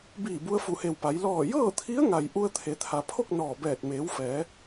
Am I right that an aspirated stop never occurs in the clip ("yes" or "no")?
no